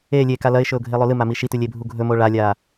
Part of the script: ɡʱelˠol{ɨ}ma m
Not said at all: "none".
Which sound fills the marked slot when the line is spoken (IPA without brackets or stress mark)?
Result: ɨ